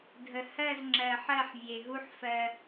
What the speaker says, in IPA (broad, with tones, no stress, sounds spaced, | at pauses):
dʱ ə˨ h ɜ˦˨ z ŋ͡ǁ ɜ˨ ħ ɜ˦˨ ħ vʲ e˨ ɦ u˦ ħ f ɜ˦